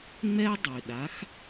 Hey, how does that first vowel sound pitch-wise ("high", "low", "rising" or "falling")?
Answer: high